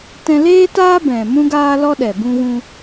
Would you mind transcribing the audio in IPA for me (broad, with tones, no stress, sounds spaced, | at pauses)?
t ɛ̃˧ l eː˦ t aː˦ b ɛ̃˨ m ũ˦ ɡ aː˦ l ɔ˦ ɗ ɛ˨ b ũ˧ ɣ ũ˧